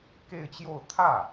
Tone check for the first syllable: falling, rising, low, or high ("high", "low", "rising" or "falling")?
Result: falling